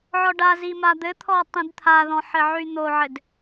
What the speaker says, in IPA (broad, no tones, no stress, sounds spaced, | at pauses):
ʕ ɔ ɖ a z i m a d̪ ɘ t̪ʰ ɔ tˤ ĩ d t̪ʰ a ð ɔ̃ ħ ɘ ʕ y n̪ o ʕ ɘ d